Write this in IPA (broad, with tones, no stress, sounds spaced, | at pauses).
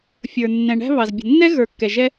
fʲ ə˞˩ nː ɛ̃˩ ɳ æ̤˥ β ɑ˩ z bʲ ə̤˩ nː ɛ˥ ɣ ə˞˩ kː ɛ˩ ʒ ɛ˥